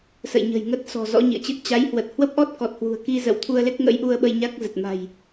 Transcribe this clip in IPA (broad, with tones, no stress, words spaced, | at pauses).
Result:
sə̰˧˨jɲə̤˨˩jŋə˦˥t̚ sɔ̤˨˩zɔ̰˧˥ɲḭ˧˨ə̯t͡ɕɨ˦˥t̚ t͡ɕa˨˦jhwə˨˩t̚ hwə˦˥p̚ʔɔ˦˥t̚kɔ˨˩t̚ hwṳ˨˩ə̯ki˧zə̰˧˨w t̪ʰu˧ə̯le˦˥k̚ŋə̰˧˥j ʔu˧ə̯ɓə˧j ɲa˦˥k̚zə˨˩t̚ ma̤˨˩j